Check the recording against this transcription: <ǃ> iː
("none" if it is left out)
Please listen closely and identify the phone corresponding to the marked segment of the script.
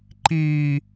ǃ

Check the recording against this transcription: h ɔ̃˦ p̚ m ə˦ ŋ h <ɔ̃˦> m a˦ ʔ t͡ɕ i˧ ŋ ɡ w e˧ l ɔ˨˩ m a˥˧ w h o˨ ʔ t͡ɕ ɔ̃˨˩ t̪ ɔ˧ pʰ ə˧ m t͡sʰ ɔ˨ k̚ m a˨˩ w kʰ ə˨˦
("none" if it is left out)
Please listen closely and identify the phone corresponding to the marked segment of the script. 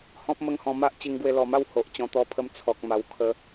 ɔ̃˧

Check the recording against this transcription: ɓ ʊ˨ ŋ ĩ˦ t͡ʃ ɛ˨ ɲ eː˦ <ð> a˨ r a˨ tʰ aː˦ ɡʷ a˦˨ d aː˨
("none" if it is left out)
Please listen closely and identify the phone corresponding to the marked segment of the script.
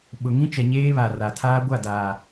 β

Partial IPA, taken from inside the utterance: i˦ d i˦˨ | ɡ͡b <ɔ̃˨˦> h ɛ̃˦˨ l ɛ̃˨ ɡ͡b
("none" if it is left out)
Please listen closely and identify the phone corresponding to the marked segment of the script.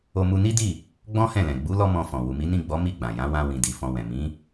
ɔ̃˦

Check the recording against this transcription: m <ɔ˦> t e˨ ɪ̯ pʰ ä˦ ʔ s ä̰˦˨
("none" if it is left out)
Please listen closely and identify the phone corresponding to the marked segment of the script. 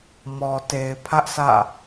ɔ˨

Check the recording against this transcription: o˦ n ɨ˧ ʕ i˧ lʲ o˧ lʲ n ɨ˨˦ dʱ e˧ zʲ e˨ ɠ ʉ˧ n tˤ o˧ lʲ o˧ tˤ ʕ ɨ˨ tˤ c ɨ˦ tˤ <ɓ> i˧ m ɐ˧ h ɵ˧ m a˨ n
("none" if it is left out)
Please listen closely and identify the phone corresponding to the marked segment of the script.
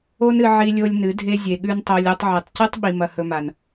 ɓ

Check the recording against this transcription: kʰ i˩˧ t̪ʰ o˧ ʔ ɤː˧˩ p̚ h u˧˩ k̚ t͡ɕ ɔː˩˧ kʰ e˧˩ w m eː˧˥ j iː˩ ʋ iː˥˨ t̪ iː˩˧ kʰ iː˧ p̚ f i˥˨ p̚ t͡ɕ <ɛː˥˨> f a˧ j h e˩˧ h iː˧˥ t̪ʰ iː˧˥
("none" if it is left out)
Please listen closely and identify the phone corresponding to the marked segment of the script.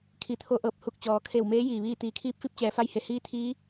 ɛː˩˧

